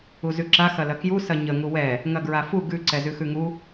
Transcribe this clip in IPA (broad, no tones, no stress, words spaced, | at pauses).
uzʉǁa xɐlɐkju sɐɲə ŋuwɛ | ŋɐɡɹafu ɡʉ ǀɛzʉxʉŋu